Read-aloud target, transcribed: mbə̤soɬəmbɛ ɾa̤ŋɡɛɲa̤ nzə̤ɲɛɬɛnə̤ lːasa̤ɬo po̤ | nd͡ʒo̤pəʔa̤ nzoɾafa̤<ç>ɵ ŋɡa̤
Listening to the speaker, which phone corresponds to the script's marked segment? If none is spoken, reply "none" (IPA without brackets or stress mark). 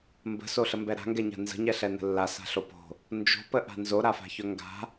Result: ç